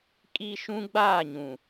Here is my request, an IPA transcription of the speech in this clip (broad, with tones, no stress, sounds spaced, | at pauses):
kʼ i˦ ʃ ũ˦ ɡ͡b aː˦˨ ɲ ũ˨